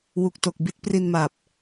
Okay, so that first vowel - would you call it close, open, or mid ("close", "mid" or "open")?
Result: close